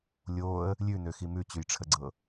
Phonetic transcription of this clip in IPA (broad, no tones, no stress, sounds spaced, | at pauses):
lʲ oː ə̯ | lʲ ʉ n ø x i m ʉ t͡ɕ ʉ j ʈ͡ʂʰ ə ɡ͡ǀ ɤ